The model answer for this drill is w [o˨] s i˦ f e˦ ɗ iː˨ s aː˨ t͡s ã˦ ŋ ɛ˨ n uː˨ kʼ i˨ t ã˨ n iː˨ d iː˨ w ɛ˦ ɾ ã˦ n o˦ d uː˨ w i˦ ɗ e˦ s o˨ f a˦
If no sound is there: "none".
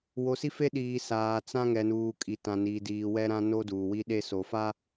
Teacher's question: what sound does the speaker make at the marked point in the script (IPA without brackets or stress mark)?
o˨